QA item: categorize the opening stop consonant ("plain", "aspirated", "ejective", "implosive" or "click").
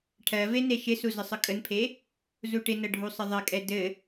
aspirated